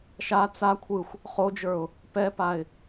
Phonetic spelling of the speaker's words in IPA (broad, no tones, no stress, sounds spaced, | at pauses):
ʃ a t͡s a kʷʰ ɯ xʷ | χ o d͡ʒ ə˞ ʊ̯ | p ɛ p a ɪ̯